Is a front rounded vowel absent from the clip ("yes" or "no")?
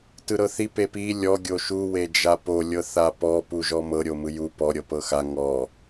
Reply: yes